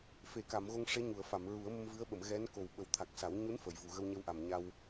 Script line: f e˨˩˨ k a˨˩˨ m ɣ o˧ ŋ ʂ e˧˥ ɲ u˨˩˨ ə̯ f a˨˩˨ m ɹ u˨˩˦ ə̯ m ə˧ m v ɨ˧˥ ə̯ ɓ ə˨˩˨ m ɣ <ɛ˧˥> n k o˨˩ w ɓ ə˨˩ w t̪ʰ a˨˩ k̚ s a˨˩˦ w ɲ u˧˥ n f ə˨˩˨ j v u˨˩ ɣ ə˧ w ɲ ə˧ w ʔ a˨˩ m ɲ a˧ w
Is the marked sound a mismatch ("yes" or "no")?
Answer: no